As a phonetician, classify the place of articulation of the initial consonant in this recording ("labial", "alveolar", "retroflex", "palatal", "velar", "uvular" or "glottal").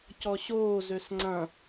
palatal